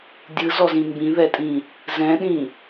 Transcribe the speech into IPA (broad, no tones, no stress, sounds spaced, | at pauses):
dʲ ɯ z ɔ z ĩ m b ĩ ð ɛ tʼ ĩ | z ɛ̃ ɗ ĩ